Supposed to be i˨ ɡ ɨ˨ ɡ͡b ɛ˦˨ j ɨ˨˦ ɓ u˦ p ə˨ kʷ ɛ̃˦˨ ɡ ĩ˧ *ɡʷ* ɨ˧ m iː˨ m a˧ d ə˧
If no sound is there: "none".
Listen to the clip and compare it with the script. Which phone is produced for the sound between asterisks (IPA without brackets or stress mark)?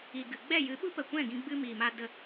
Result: ɡ͡b